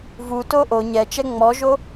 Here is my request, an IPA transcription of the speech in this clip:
v u t o ʔ o ɲ ɛ t͡ʃ ɛ ŋ͡m ɔ ʒ o

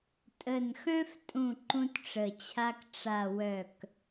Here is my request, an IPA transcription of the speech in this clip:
tʼ ə˧˩ n x œ̃˦ f tʼ ũ˧˩ ǃ ũ˦ t ʈ͡ʂ ə˧˩ t͡ɕʰ a˦ k ʈ͡ʂ a˧˩ w œ˧˩ k

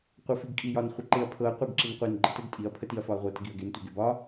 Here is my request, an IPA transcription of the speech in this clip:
qʷ ɤ f i ɡ kʼ i j ɒ n χʷ ə ǃ e ɐ̯ pʰ ɤ ɐ̯ qʷ ə ɡ ǁ i n qʷ e n ɡ͡ǃ ə t ə ɡ tʼ i ɐ̯ pʰ ə t i ɐ̯ f ɒ ɐ̯ ʁʷ ɤ t ə ɡ i ɐ̯ ɡ e n tʷ e ɡ e b ɒ

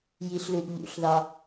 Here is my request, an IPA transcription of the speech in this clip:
j i ɬ l u ʔ ʎ ṵ ɬ ð ɑ

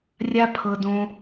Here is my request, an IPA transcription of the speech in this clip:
rʲ a˦ pʰ ɤ˧ d õ˧

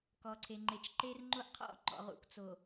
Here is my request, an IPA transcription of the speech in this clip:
k ɔ˨ ǀʰ e˨ ŋ͡ǃ e˨ t͡ʃ ǃ e˦ r ŋ͡ǃ o˦ ʔ qʰ ɔ̰˦ ŋ͡ǃ ɔ̰˨ ʁ ṵ˨ k t͡s o˨

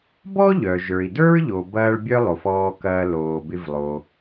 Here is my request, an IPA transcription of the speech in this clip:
b ɔ˥ ʎ œ˩ ʒ ə˞˩ i̯ d ə˞˥ ɹ ʎ o˩ b ɐː˧ ɭ bʲ œ˥ lˠ o˩ f ɔː˧ k ɐː˧ l oː˩ b ɪ˧ v lˠ o˩

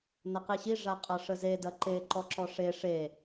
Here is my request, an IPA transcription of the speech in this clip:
n ɐ q i ɕ i ʐ a qʼ ɐ ʂ ə z e d ɐ ǃ e ǃ ɔ ǁ ɔ ʂ e ʂ e

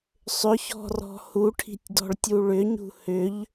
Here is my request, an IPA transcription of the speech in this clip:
sˤ ʏ ç ɔ̤ r ɔ̤ h u ʈʰ i̤ tʲ d ɔ̤ ɭ tʲ u ɭ ʏ ɲ ṳ h ʏ ʎ

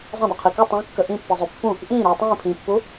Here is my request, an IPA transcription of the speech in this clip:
zˤ ə̃ dˤ u qʰ i k ɯ tˤ ə̃ː kː ə ʔ ĩ pː i zˤ ø pː ũ | ʔ ĩː ɾ uː tˤ ĩː pʰ ĩː pː u

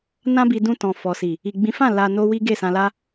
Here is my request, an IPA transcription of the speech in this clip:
n ã˦ b i˧ d ũ˧ t ɔ̃˨ f ɔ˨ s i˨ | i˨ ɡ͡b ĩ˨˦ f ã˦˨ l a˧ n o˦ w i˦ ɡ e˦˨ s ã˧ l a˦

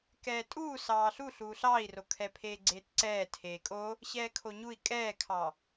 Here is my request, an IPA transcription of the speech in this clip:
k ɛː tʼ uː s ɑː ɬ u ɬ uː ɬ ɑː i̯ r o kʰ ɛ pʰ eː ɡ͡ǀ eː t ǀ ɛː tʰ eː kʼ o | ɕ ɛː kʰ o ɲ u i̯ kʼ ɛː kʰ ɑ

